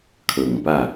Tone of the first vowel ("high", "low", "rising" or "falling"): low